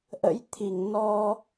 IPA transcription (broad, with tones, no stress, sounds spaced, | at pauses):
ʔ ə̰˧˥ j t̪ʰ i˧˩ ŋ n ɔ˧